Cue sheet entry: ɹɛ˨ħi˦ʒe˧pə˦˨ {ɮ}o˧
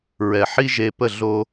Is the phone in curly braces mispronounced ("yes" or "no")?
no